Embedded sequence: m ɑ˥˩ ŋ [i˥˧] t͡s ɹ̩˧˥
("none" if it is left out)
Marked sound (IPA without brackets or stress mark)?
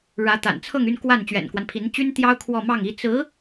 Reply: i˥